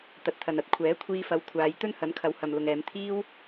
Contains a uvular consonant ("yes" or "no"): no